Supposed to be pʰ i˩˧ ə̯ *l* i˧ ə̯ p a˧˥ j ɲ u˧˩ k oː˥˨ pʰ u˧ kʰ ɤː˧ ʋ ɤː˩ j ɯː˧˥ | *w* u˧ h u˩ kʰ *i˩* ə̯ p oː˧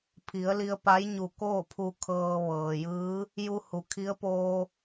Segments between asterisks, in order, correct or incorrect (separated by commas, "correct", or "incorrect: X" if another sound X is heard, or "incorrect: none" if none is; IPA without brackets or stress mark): correct, incorrect: j, incorrect: i˧˥